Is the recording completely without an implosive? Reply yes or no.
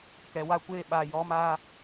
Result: no